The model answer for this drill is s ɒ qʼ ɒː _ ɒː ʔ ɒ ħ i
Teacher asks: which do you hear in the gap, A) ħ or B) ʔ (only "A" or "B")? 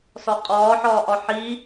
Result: A